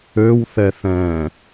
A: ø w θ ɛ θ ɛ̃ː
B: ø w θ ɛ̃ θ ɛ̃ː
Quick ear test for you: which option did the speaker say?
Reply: A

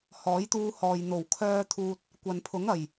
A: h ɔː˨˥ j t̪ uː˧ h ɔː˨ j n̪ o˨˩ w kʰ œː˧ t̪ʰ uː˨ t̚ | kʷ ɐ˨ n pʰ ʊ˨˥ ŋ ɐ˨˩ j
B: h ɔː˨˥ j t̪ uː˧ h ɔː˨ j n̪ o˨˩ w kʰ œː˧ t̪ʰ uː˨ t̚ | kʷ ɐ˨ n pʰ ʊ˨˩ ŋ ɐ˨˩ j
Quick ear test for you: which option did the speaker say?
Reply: A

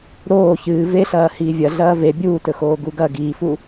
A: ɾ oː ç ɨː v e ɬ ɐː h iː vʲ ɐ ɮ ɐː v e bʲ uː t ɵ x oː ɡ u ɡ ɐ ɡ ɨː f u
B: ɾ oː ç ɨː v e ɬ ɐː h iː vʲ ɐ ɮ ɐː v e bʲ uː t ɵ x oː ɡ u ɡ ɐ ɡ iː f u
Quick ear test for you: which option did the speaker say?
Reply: B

